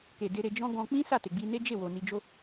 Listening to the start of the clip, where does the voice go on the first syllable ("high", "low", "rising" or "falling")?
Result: low